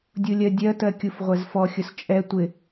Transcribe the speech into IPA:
dʲ u lʲ ɜ dʲ ɜ t ɜ kʲ u f ʁʷ ɛ z f ɔ xʲ ʊ s t͡ʃʼ ɛ tʷ ɪ

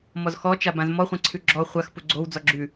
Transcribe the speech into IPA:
m ɔ z x ɔ t͡ʃ a b ã z m ɔ χʷ ã ǀʰ ʉ ɡ͡ǁ ɔ χʷ a x p u ɡ͡ǀ o w d͡z ɔ ɡ͡ǁ ʉ

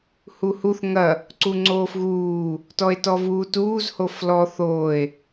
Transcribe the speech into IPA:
h u h u θ ŋ ɐ | ǀ u ŋ͡ǀ oː f ɣ uː | t ɔ e̯ t ɔ v uː t uː z h o f l ɔ θ oː e̯

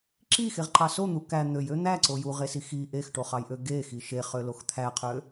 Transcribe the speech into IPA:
ǁ i x e ʁ ǃ ɑ s o n̪ u k æ n̪ ø j ø n̪ æ ǀ o j u ʁ e s i x i ʔ e x ʈ o χ ɑ j ʔ ø ɡ e x i ʃ e χ ø l o x t̪ʰ æ qʰ ø

